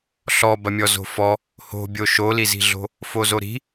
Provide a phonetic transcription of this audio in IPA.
ɬɔbɐmʲɔ zo̤fɔ | ho̤bʲo ʃolizi̤ɮo̤ | fozoɾi̤

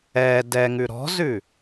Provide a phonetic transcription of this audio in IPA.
ɛ dɛŋʉ ɾɔ̤zʉ

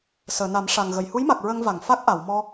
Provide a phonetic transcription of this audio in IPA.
səː˨˩˨na˨˩˦mʂa˨˩ŋɣə˨˩˨j hu˧˥jma˨˩k̚ ɹə˧ŋva˨˩˨ŋ fa˦˥k̚ʔa˨˩˨wmɔ˧

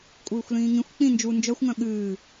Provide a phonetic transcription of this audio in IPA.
kʷʼɨːxʷlĩːŋĩxʷ k͡pĩ nd͡ʒu nd͡ʒœxʷŋœ̃ ɠɨː

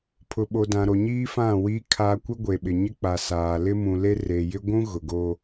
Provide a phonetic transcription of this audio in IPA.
pʰʊ˨ɓo˨ dã˨ɾo˨ɲiː˦fã˦˨ wi˨˦kʰa˨ kʷɪ˦ ɡʷe˨ɓɪ˨ɲɪ˦k͡pa˨ saː˨ lɪ˦mũ˨le˦ re˨jɪ˦ ɡʷũ˦ ɣʊ˨ ɡo˦

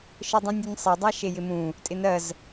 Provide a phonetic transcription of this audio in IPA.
ʃɘdˤũnʲunʲsˤe dˤaʃejɪmũ | tʼɪnɜz

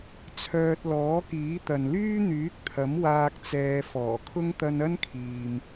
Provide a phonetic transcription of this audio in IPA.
t͡sʰœː˧t̚ lɔː˨˥kiː˨˥ t̪ɐ˨nlyː˥ n̪yː˨˥k̚t̪ʰɐ˨˥m waː˧k̚t͡sɛː˨˧ fɔː˨˩kʰʊ˥ŋ t̪ɐ˧n ɐ˥nkʰiː˨m

